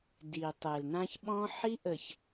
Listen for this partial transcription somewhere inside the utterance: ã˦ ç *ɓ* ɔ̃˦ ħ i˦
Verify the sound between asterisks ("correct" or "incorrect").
correct